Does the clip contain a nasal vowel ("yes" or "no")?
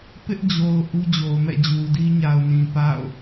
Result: yes